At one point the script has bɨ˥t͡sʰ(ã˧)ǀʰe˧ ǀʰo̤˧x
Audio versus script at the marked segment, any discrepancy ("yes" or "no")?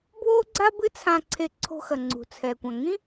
no